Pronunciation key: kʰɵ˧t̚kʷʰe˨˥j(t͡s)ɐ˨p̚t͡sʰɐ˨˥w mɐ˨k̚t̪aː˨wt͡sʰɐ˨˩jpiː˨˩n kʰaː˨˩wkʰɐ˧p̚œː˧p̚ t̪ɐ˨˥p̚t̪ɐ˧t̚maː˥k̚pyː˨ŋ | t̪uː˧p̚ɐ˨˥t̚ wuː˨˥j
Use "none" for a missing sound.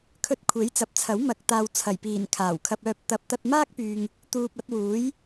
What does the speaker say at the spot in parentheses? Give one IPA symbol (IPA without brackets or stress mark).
t͡s